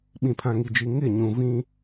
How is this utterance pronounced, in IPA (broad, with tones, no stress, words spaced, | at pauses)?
ɓĩ˨pʰã˨ŋi˨d͡ʒi˨ ŋɪ˦˨ ɲũ˨ vĩ˦